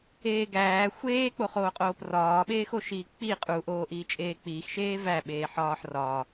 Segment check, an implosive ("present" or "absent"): present